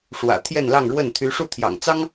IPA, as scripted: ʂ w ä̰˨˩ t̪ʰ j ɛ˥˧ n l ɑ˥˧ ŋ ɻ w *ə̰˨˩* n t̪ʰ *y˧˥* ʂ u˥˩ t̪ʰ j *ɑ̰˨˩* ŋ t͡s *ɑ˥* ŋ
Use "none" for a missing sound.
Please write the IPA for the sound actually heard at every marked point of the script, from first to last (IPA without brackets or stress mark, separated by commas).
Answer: ə˥˩, y˧˥, ɑ̰˨˩, ɑ˥